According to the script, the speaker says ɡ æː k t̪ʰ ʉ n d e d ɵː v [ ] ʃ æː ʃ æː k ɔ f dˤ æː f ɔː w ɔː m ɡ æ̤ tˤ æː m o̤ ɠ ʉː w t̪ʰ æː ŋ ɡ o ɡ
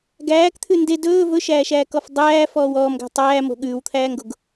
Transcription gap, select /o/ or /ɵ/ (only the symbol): ɵ